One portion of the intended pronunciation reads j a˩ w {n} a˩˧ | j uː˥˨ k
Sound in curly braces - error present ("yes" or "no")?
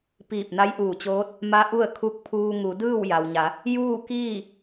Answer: yes